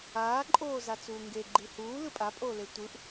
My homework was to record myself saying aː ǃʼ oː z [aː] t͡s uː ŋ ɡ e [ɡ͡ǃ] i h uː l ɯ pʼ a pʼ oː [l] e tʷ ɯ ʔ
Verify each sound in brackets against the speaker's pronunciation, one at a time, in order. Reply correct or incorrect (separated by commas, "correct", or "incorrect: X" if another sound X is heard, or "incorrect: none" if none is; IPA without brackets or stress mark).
incorrect: a, correct, correct